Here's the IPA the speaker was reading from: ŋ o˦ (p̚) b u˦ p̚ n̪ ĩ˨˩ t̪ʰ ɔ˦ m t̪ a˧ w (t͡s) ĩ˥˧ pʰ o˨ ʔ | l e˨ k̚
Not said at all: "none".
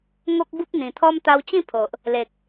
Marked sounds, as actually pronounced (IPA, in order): k̚, t͡ɕ

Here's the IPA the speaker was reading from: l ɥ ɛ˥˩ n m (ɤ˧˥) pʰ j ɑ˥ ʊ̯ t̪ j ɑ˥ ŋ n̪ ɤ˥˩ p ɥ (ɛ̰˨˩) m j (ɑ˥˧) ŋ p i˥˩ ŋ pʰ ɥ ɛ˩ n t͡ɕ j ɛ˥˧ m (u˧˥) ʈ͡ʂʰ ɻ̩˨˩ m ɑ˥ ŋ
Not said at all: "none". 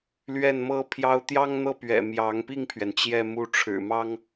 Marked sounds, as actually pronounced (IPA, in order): ɤ˥, ɛ̰˨˩, ɑ˧˥, u˥˩

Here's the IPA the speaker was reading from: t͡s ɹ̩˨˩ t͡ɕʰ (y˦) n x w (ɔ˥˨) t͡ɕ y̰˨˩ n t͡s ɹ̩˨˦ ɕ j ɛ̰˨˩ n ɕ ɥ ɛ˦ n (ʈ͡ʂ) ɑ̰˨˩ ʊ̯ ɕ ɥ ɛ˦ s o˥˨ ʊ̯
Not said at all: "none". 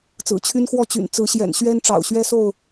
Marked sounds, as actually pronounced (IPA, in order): y˦, ɔ˥˨, ʈ͡ʂ

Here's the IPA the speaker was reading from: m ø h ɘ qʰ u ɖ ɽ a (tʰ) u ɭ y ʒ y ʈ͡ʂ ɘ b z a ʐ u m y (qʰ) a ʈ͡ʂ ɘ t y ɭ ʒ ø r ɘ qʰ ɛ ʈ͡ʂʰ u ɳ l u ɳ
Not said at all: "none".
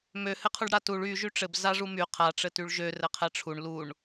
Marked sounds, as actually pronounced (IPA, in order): t, qʰ

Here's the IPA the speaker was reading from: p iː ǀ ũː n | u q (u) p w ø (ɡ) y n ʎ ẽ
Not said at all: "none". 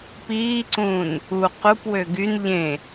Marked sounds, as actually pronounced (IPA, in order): u, ɡ

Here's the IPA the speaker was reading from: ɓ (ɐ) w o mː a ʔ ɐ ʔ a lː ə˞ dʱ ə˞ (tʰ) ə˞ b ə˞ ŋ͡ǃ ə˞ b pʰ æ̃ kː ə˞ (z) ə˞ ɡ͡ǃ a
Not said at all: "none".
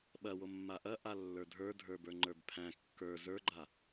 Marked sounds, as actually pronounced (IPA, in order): ɐ, dʱ, z

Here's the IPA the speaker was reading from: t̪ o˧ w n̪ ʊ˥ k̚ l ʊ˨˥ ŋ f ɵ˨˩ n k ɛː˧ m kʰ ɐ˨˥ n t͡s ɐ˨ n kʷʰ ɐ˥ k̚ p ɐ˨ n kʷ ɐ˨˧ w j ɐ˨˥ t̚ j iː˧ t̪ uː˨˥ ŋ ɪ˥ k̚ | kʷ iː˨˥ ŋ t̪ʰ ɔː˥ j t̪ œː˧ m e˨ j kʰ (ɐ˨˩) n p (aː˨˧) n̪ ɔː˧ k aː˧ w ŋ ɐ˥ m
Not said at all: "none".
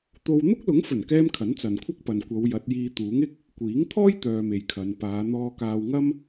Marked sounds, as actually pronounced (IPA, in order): ɐ˨˧, aː˨˧

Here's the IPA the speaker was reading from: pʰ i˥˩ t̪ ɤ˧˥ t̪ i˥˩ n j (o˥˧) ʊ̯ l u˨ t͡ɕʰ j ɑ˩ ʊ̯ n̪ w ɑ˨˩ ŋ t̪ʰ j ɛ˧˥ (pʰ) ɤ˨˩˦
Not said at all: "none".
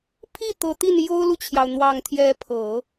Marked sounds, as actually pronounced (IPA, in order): o˥, pʰ

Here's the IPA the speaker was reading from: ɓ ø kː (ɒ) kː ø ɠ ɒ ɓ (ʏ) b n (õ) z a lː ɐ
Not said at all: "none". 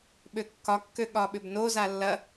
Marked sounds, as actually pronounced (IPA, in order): ɒ, ʏ, o

